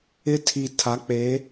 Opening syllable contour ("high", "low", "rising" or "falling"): high